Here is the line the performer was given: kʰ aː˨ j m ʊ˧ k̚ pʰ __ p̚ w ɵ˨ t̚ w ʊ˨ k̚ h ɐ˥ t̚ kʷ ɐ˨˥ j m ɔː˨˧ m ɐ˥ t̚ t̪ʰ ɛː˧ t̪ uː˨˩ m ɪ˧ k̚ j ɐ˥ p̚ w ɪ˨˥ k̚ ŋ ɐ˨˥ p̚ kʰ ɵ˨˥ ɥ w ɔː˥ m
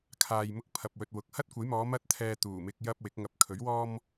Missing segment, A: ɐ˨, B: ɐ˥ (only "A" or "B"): A